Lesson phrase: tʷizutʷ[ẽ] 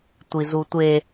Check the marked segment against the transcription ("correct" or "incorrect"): incorrect